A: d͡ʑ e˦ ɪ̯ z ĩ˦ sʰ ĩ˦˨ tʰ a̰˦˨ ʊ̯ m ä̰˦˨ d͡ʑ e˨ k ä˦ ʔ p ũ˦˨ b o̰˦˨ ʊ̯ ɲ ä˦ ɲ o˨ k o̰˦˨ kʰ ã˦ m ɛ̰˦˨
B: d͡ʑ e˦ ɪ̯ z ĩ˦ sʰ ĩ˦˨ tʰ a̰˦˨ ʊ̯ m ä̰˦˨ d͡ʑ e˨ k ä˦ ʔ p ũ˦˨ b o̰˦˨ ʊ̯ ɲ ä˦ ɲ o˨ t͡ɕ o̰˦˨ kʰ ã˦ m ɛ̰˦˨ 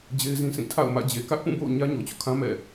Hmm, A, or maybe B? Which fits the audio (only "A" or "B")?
B